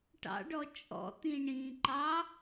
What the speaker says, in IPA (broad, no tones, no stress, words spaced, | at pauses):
ʈɑ̰ɖɔ t͡ʃʼɔ̰t̪ĩ ɳĩǃɑ